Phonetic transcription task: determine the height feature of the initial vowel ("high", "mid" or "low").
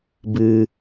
high